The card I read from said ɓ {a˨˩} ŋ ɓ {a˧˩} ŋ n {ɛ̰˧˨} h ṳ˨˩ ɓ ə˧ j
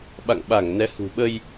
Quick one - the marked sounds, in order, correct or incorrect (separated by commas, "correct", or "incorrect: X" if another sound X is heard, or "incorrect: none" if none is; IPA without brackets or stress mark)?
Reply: incorrect: a̰˧˨, correct, incorrect: ɛ˨˦